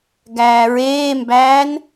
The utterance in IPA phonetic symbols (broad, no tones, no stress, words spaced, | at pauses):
ɡæːɹeːmbæːn